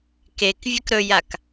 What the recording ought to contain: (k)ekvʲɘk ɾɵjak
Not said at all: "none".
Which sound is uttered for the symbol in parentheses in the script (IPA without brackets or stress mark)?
k